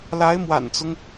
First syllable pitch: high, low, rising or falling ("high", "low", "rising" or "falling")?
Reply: rising